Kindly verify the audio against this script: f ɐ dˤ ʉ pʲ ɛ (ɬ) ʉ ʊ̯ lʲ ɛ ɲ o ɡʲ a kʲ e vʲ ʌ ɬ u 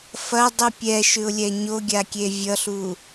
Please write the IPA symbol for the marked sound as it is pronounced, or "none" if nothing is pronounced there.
ʃ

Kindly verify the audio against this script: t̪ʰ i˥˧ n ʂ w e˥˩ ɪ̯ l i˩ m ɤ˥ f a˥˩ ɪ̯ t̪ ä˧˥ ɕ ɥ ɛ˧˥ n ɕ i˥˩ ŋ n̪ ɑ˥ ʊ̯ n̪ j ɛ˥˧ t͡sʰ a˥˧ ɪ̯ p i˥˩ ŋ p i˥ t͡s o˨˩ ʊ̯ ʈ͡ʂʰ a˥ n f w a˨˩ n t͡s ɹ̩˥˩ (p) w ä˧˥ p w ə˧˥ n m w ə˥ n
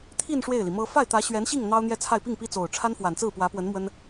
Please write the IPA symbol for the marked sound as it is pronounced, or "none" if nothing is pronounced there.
p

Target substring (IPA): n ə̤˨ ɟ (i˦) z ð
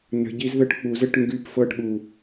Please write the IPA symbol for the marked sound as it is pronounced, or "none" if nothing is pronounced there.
i˦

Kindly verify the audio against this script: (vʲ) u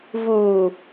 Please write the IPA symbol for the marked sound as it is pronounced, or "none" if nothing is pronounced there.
v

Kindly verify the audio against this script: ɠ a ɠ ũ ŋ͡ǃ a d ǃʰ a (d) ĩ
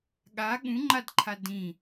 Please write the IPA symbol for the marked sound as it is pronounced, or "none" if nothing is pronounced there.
d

